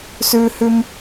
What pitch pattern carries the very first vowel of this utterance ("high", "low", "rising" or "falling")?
high